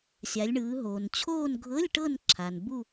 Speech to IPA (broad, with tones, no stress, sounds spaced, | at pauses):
sʲ a˩˧ lʲ ɳ ɯː˩˧ ɦ oː˩ n t͡ɕʰ oː˦˨ n ɡʱ ɤ˧˥˧ lʲ ʈ ɤ˦˨ n ǁʰ a˩ n b u˦˨